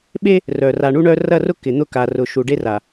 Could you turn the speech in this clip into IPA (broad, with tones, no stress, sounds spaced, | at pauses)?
ɓ e˦ | r œ˨ r a˨ ɳ u˦ ɳ œ˦ r ɐ˦˨ r ʊ˦ k ɪ˨ n̪ ʊ˦ k a˨ r ʊ˨ ʃ u˨ ɖ e˦ r a˨